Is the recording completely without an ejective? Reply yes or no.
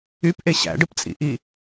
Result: no